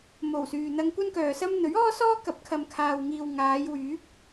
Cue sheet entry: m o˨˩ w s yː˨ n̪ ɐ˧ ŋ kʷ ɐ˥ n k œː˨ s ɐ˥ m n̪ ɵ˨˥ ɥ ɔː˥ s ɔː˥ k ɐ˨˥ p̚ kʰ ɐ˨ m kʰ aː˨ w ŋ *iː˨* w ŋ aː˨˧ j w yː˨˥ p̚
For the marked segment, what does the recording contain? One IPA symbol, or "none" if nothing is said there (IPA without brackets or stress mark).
iː˨